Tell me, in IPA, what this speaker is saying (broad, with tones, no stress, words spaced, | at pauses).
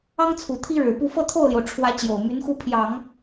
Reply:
ɑ˥ŋt͡sʰu˨˩ t̪ʰi˥ɻɻ̩˨˩pu˥˧ fɤ˥˧t̪ʰo˥˩ʊ̯ljo˩ʊ̯ ʈ͡ʂʰwä˧˥ t͡ɕjo˨˩ʊ̯my˧˥nxu˥˩ pʰjɑ˨˩˦ŋ